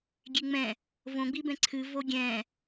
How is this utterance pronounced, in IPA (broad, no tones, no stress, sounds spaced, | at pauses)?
ɡʲ e ŋ͡m ɛ̃ | v õ ɡ͡b i b ɛ̃ ǀʰ ɨ v o ɡʲ ɛ̃